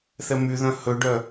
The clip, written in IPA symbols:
θɛmyðœ̃ hɵɖœ

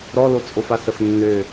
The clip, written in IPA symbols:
ɾɔlot͡sʼofa səfnːø

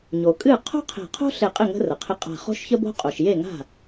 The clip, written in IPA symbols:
ɲo˩kʼɨ˥˩ qʰo̤˥qʰe̤˧˩qʰo̤˥ ɬe˧˩qʼɪ˥˩ ŋə̤˥rə˩qʰɪ˥˩ qʼa̤˧˩χo̤˥ʃçə˥bo̤˥ qʼo˩ʃje˥˩ŋa̤˥˩

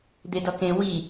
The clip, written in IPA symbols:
d̪edʌkẽ wi

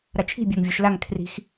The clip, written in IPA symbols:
ɾat͡ʃʰi̤ bʲaŋvʲɔʃlaŋ kʰri̤x

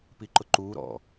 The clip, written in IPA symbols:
piǃʊǃuː ɾɔ̰

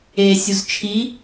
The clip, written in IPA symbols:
e sʲuzt͡ʃʰi

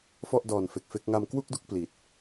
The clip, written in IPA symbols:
fɔ˥˩ʔdɔː˨˩nfe˨˩k̚fe˦˥k̚ ŋa˧mkwu˥˩k̚du˥˩k̚ pli˨˩t̚

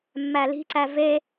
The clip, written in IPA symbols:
mːæli̤ǀæ ve

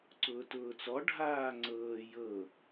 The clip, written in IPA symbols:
ǀʊːtʊːt͡sɔ ɖʱaːŋ͡ǀɤː jɤ

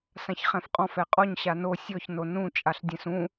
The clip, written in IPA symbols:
sãçχɛ̃fqʼɔ̃f ɛqʼɔɲ ɕano sʲɔç nonũ t͡ʃʼaɬdʲɛ̃sũ

